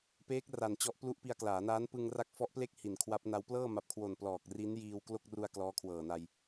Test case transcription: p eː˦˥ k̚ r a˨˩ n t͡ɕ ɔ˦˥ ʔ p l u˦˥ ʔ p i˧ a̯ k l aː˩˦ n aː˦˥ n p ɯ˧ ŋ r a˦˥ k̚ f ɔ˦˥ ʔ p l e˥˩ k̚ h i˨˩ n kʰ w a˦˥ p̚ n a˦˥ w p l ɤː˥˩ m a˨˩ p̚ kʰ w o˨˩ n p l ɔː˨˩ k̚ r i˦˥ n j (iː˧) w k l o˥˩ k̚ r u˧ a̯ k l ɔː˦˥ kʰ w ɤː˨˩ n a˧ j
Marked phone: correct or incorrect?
correct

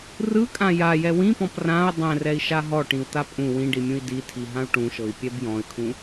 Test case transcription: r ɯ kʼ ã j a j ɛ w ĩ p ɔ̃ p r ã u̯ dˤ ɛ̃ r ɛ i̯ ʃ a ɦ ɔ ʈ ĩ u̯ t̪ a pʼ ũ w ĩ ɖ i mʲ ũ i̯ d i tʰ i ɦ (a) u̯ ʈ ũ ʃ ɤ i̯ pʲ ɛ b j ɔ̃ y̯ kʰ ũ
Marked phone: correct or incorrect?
incorrect: ã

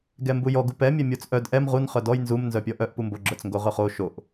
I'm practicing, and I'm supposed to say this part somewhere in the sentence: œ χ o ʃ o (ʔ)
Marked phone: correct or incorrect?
correct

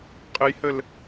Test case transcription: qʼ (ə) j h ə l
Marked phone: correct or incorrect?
correct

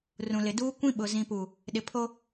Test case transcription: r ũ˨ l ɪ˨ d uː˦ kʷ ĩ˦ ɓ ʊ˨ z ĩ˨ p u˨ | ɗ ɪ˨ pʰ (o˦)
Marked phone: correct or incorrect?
correct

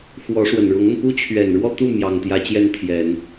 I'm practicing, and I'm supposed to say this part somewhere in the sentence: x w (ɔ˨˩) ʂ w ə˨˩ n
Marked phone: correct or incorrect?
incorrect: ɔ˧˥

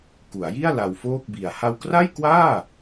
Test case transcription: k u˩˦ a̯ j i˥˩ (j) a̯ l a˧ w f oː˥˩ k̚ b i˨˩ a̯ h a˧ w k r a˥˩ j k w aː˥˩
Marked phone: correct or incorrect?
incorrect: none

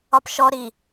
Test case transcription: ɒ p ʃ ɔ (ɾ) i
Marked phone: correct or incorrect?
correct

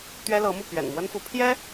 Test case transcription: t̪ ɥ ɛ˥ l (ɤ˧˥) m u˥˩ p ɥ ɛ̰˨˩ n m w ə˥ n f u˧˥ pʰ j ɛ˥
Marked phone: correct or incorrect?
correct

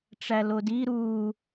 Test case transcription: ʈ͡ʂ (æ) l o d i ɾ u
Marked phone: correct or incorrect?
correct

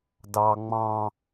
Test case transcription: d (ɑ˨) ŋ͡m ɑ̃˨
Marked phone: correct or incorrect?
correct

